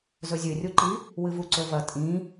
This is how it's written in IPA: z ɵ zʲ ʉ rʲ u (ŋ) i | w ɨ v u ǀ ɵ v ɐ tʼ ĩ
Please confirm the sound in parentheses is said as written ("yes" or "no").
no